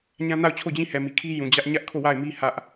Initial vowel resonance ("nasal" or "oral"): nasal